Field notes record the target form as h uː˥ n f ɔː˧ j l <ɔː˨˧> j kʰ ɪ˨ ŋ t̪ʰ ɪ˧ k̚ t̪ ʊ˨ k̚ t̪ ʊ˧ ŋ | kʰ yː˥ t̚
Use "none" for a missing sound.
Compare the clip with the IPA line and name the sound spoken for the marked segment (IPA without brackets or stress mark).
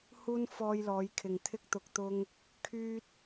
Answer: ɔː˨˧